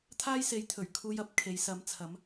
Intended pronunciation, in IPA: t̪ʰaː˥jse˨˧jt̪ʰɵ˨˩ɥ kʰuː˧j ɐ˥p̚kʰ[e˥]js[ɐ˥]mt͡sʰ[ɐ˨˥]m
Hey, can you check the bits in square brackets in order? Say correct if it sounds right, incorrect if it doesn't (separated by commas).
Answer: incorrect, incorrect, correct